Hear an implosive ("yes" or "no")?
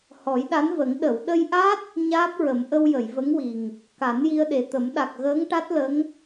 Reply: yes